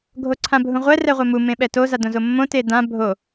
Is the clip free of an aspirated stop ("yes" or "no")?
no